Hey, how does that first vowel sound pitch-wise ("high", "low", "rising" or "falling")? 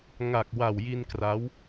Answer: low